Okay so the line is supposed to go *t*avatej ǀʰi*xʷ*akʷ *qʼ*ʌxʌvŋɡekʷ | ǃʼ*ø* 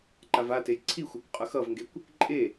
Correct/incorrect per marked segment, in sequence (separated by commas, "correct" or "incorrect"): incorrect, correct, correct, incorrect